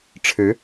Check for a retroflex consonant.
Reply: present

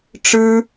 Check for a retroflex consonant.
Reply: present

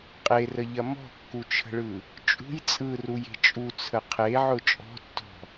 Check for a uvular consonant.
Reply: present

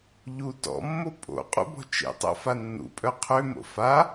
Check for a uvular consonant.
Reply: present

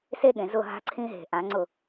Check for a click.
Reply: present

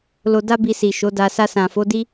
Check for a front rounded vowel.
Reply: absent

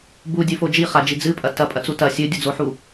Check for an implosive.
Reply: absent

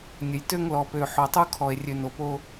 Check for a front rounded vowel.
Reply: present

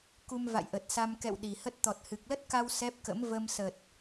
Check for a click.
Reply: absent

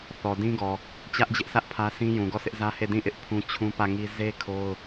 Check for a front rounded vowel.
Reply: absent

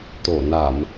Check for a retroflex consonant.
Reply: absent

